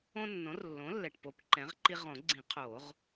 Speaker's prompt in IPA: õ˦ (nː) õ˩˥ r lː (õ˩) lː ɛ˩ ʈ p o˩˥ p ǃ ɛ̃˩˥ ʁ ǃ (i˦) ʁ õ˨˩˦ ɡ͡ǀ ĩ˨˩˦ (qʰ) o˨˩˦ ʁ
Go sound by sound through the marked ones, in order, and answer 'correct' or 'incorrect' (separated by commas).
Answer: correct, incorrect, correct, correct